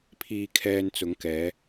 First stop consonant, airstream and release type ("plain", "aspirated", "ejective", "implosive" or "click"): aspirated